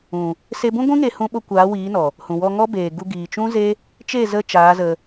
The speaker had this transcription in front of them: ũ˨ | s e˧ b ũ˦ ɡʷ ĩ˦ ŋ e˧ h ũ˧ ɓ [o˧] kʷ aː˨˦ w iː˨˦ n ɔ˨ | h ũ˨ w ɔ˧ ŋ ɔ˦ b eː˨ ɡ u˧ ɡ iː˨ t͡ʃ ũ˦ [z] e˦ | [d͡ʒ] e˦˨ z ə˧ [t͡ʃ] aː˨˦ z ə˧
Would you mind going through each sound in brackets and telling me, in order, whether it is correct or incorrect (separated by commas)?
correct, correct, incorrect, correct